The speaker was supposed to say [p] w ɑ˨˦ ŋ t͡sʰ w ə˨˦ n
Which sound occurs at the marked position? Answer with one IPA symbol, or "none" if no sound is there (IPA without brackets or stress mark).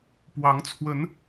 p